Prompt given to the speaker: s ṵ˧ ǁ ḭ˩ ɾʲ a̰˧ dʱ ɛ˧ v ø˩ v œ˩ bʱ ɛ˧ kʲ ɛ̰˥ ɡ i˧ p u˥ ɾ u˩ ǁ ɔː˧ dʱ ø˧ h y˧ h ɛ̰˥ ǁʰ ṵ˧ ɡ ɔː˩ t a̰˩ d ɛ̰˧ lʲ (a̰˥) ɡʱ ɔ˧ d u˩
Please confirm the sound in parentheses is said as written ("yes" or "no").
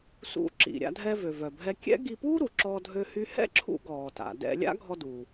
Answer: yes